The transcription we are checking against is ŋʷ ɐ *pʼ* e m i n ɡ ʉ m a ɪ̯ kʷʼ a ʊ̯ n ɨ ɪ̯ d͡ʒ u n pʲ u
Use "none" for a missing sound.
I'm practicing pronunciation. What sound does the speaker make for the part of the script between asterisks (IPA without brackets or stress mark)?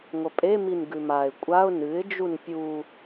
pʼ